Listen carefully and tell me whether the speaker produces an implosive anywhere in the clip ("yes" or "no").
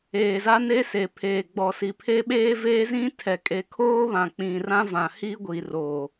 yes